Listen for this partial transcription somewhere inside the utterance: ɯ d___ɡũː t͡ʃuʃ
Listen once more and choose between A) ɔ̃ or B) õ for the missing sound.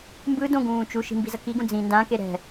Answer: B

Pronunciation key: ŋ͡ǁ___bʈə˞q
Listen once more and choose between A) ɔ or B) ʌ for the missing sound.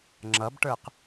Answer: B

